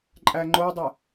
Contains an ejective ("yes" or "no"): yes